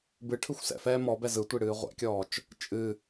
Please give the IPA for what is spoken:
bɨ ʈʰɯxʷsɛ̰fɛː mɔbɛ zɯtʷi ɽɨːʁʷɛ̰kʲɔːt͡ʃ | t͡ʃʼɨ

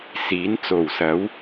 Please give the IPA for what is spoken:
siː˨˥nt͡so˨˩wsɐ˨˥w

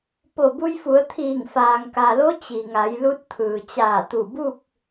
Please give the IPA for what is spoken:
po˧˩bu˧jfu˩˧ə̯t̪ʰiː˧˩ŋ faː˩ŋka˩lo˧˥ t͡ɕi˩ŋa˩˧jlu˧˥t̚ t̪ʰɯː˩t͡ɕaː˧˩t̪u˧˩ bu˥˨k̚

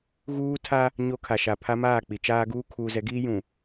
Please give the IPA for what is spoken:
ɣuː˦tʰa˦ | ɲo˦ kʰa˨ʃa˨pʰa˦ maː˦˨k͡pi˨t͡ʃaː˦ɡuː˦ kʰuː˨zɛ˨˦ɡiː˦jũ˨

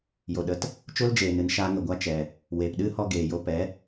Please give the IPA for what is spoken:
jo˨ɗə˨˦t | t͡ʃo˦ld͡ʒeː˨nɨ˨n ʃaː˧ ŋə˨ɡʷa˧ t͡ʃɛ˨ | weː˨pɗɨ˦hɔ˧ ɡeː˨jo˧ pɛ˨˦

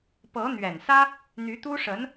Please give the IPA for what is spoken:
pɤ˧˥n̪ɥɛ˨˩nsä˥ | n̪y˧˥t̪u˥ʂə˧˥n

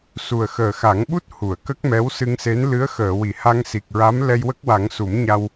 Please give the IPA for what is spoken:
su˨˩ə̯xəː˨˩xa˨˩˦ŋɓu˦˥t̚ hu˨˩˨ə̯kə˦˥k̚mɛ˧˥w sɨ˧ŋse˧˥n lɨ˧˥ə̯xəː˨˩˨wi˨˩˨ ha˧ŋsi˨˩k̚ɹa˧˥m lɛ˧jwə˦˥k̚wa˨˩˦ŋ su˨˩˦m ɲa˧w

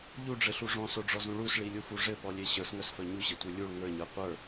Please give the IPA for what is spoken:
ʎuɖ͡ʐɘɬu ʐɔ̃soɖ͡ʐɔzũ ɭusɭilʲufu ʐɘpɔlʲe ɕə˞sŋœsfœ ɲuɕɘtʷe lʲuɭ ŋə˞ɲə˞ qʷə˞

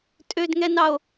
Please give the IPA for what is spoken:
tʼødŋɛnɑo̯

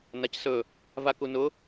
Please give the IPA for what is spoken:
nacsɵ | vakunʊ

